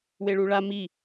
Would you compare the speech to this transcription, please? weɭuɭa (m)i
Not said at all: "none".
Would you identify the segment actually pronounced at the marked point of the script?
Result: m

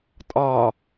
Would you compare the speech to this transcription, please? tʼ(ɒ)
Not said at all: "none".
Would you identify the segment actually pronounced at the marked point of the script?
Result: ɒ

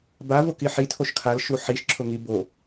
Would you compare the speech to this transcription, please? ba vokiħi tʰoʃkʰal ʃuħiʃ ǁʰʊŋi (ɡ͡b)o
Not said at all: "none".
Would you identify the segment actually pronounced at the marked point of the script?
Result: b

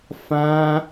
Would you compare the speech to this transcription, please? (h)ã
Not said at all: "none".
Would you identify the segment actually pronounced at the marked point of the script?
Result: f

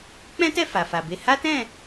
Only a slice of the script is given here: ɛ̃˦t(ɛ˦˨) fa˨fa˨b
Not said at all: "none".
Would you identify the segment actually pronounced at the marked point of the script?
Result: ɛ˦˨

